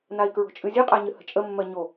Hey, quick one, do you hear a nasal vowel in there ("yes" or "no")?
no